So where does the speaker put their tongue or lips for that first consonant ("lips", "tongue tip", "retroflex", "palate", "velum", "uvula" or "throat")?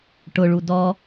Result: retroflex